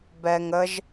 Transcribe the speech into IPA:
b ɛ ŋ ə ʒ

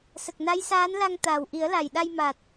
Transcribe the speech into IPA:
s ə˨˩ k̚ n a˧˥ j s aː˧˥ n l a˧ ŋ t̪ aː˨˩ w ʔ i˨˩˦ ə̯ l a˨˩ j ɗ a˧ j m a˨˩ t̚

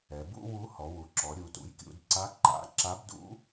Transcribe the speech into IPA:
ɛ˩˧ b ṵ˥ w u˧˥ h ɔ˩˧ w u˩˥ ǁ ɔ˩˧ ɾʲ u˩˧ t ṵ˩˥ j kʲ ṵ˩˧ d ǀ a˧˥ ǃ a̰˩˥ ǁ a˧˥ b d ṵ˧˥

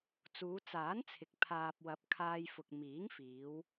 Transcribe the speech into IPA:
t͡s uː˨˧ t͡s aː˨˥ n t͡sʰ ɪ˨ k̚ pʰ aː˨ p̚ w ɐ˨˥ p̚ kʰ aː˧ j f ʊ˨ k̚ m iː˨˥ ŋ f iː˨˧ w

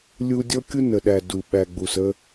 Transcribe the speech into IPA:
lʲ u˦ dʲ ɔ˦ kʲ u˦ n ə˨ ɗ æ˨ d u˨ ɓ æ˨ ɡ͡b u˨ s ə˦

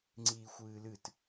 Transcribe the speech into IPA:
ŋ͡ǀ iː xʷ ɨː l ɨ t

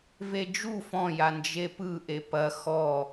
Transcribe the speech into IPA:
v e d͡ʒ u f ɔ̃ j a n d͡ʒ e p ɯ ʔ e p ɐ x ɔ

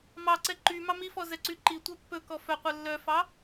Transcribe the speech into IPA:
m ɑ ǀ ɛ ǃ y m ɑ m i f ɔ z ɛ ǀ y ǃ i tʷ ɛ pː ɵ k ɔ f œ qʷ œ lː œ f ɑ

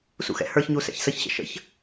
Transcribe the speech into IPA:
s ṵ x ɛ̰ h ə˞ ç ɲ u s ɛ̰ ç s ə ç ɕ ə̰ ʃ ə̰ ç

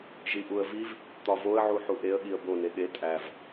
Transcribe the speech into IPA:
ʒ i ʔ u ə̯ v i v | t̪ ɒ v o ə̯ ʕ u ħ u ʔ e ə̯ ɠ i ə̯ b o n e ɠ e tʼ æ v

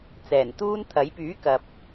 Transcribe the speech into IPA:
t͡s ɛː˨˩ n t̪ uː˥ n t̪ʰ ɐ˨˥ j p yː˨˥ k ɐ˨ p̚

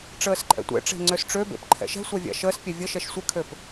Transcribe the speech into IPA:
ʈ͡ʂ əː s ǃʼ ɛ̰ tʷ ɛ̰ ʈ͡ʂ e̤ ŋ͡ǀ ø s ʈ͡ʂ ø b ḛ p ǃʰ ɛ̰ ʃ ɛ̤ sʷ a vʲ a̰ ʃ əː s pʲ ɛ vʲ ə ʃ ɛ ʃ sʷ ə kʰ ø p

